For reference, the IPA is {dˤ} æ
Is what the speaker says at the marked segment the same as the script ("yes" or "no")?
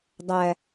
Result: yes